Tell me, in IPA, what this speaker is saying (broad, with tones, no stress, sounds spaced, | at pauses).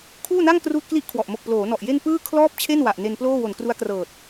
kʰ uː˥˩ n a˥˩ ŋ k r uː˥˩ t̚ k l i˥˩ ʔ kʰ w ɔ˨˩ ʔ m o˨˩ k̚ p l oː˩˦ n ɔ˨˩ ʔ j e˥˩ n p ɯː˥˩ kʰ l ɔː˥˩ p̚ t͡ɕʰ e˥˩ n w a˨˩ ʔ n e˧ n p l oː˥˩ w o˨˩ n k r u˦˥ a̯ k r ɤː˨˩ t̚